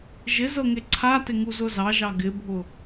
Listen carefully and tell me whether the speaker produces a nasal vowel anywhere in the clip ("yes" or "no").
no